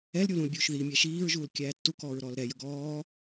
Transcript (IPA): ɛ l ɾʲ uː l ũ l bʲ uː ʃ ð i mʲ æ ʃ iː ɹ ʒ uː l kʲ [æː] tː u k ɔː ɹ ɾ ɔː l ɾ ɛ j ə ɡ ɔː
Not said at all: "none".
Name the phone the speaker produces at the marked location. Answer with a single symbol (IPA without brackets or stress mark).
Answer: æː